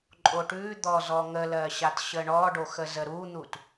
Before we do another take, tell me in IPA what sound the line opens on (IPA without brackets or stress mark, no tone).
ǃʼ